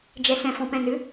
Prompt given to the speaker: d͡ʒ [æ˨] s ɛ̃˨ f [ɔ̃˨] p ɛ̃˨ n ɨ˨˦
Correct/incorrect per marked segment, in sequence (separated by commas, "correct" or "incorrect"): incorrect, correct